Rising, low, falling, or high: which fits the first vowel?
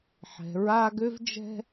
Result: rising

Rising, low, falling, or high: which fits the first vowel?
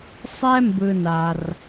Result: high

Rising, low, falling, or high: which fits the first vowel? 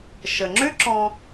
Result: low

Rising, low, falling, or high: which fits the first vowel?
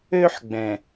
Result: high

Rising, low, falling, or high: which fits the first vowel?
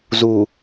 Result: low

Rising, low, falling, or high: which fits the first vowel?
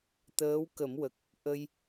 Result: rising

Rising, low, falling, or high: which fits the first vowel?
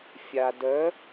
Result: low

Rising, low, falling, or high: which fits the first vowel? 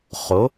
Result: rising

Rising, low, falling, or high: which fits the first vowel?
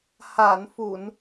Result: low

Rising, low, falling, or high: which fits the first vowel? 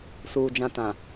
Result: low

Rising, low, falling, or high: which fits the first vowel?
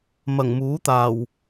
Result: low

